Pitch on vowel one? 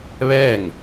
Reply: falling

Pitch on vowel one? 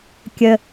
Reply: low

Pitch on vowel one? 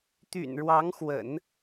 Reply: low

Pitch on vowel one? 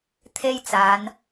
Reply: high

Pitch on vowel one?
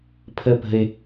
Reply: high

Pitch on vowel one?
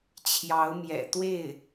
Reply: rising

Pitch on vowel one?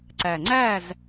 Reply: low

